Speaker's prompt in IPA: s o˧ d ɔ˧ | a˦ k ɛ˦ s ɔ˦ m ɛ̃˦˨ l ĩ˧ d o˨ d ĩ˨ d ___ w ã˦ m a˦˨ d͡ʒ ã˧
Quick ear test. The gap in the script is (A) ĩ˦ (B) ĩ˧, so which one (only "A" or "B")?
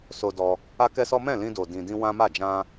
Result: B